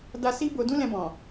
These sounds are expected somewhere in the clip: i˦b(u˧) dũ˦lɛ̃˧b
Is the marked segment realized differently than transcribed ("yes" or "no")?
yes